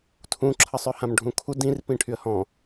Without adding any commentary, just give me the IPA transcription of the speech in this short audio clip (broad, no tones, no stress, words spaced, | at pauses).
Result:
tʰũǁʰəsˤœhãm ɖʱũkʰu dĩrpĩ ʈʰyə̯hɔ̃